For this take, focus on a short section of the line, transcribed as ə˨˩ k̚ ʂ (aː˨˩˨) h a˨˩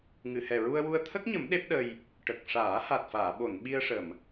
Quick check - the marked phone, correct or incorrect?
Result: incorrect: aː˨˩˦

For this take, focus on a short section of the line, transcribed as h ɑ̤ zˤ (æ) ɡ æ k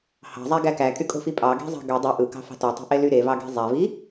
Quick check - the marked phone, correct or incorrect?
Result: correct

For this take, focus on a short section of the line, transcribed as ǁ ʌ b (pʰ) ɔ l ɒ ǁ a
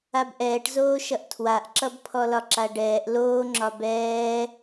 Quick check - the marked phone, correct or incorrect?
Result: correct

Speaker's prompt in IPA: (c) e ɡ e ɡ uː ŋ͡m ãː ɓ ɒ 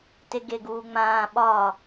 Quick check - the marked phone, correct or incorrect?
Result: incorrect: t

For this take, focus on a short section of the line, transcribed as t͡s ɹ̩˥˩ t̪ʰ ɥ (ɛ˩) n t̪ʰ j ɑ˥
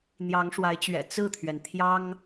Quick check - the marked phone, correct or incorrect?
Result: correct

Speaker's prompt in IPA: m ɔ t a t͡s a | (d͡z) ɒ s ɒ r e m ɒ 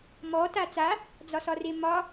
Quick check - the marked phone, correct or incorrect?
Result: correct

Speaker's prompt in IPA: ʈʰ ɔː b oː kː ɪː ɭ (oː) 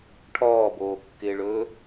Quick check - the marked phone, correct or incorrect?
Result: incorrect: ɵː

